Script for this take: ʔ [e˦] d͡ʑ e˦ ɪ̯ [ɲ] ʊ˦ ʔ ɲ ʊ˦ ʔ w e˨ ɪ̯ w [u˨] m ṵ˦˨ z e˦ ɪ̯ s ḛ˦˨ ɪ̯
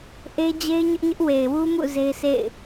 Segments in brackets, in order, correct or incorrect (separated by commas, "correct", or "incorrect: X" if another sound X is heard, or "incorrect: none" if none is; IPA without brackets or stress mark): correct, correct, incorrect: u˦